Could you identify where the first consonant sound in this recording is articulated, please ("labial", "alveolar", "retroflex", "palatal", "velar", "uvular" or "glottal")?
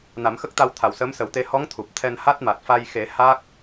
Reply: alveolar